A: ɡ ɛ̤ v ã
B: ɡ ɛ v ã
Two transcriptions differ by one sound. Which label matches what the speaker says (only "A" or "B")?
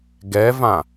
B